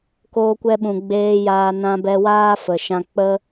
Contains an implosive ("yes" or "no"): yes